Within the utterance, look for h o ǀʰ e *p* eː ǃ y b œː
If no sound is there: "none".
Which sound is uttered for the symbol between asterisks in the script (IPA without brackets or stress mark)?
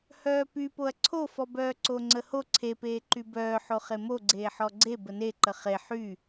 p